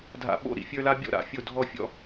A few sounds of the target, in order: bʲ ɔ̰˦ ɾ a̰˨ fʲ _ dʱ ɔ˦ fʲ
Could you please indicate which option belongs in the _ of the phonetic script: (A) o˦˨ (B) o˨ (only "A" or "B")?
A